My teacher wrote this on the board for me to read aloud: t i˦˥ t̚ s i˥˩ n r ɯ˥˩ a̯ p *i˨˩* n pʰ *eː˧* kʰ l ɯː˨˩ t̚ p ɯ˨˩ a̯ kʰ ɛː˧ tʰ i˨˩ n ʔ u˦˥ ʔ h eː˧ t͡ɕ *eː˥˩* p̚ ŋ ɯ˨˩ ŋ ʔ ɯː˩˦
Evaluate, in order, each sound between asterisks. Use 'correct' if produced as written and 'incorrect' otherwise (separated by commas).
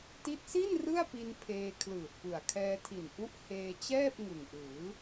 incorrect, correct, incorrect